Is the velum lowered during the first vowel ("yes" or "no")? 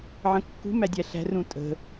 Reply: yes